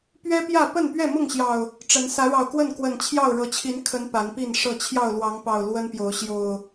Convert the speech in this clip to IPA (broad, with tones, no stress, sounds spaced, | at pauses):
p ɥ ɛ˦ p j ä˥˨ p ə˥˨ n p ɥ ɛ˥˨ m ʊ˥˨ ŋ ɕ j ɑ˨˩ ʊ̯ | ʈ͡ʂ ə˨˦ n s ä˨˦ ɻ ɑ˨˩ ʊ̯ k w ə˥˨ n k w ə˨˩ n t͡ɕʰ j ɑ˥˨ ʊ̯ ɻ ɤ˨˦ t͡ɕʰ i˨˦ n kʰ ə˨˦ n p a˨˦ n p i˥˨ n ʂ ɤ˥˨ t͡ɕʰ j ɑ˥˨ ʊ̯ l w ɑ˨˦ ŋ p ɑ˨˩ ʊ̯ l w ə˦ n p j o˨˦ ʊ̯ ɕ j o˨˩ ʊ̯